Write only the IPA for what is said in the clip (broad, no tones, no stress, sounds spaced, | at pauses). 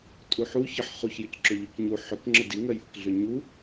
tʼ u ħ u ç ə ħ χ u ç j ʏ c ǁ ʏ ʎ u c ɲ u ħ ʏ k ŋ͡ǁ ə d i ŋ ɜ j ʔ ə k ɮ ʏ ɲ u